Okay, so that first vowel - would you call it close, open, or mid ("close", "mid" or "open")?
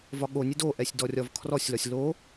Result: open